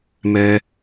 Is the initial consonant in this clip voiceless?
no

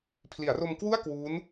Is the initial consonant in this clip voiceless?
yes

